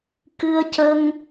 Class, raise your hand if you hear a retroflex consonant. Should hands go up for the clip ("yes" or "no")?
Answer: no